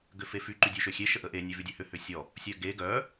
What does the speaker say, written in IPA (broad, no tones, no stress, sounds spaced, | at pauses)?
ɡ ʏ f e f y ǃ y dʲ ø ʃ ø xʲ e ʃ ə ʔ ə ʔ e nʲ ø v y dʲ œ h ʏ h ʏ sʲ ɔ | sʲ œ ɡ e ɡ œ